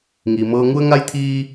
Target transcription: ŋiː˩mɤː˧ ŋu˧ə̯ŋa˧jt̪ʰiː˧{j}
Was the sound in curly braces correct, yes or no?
no